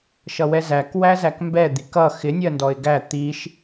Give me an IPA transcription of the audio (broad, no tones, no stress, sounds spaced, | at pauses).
ʃ ʌ w ɛ z æ k w æ z æ k m b ɛ d̪ i k ʌ x ɪ nʲ ɜ n d ɔ ɪ̯ ɡ æ t̪ i ʃ